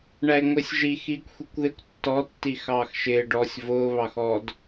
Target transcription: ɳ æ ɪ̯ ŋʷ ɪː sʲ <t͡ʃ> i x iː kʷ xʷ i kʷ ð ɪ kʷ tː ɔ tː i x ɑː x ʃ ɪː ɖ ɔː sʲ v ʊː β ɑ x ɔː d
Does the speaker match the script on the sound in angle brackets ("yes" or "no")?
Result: no